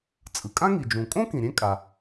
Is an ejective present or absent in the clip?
present